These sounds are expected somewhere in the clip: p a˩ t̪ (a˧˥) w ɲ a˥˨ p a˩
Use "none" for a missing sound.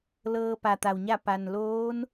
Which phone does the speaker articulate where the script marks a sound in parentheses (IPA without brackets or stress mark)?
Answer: a˩